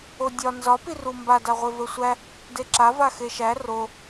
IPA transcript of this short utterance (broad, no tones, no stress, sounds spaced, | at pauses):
o dʲ ɒ n z ɒ p i r u m b a d a ʁʷ e v ə˞ sʷ æ | d e ǁ a v a x e ʃ æ r o